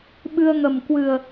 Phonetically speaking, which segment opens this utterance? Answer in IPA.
ɓ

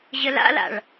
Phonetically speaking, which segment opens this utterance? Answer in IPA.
ʑ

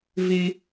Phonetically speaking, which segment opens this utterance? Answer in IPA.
v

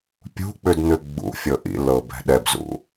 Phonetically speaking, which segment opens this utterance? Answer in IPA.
pʲ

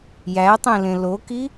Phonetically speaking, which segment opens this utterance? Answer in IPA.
j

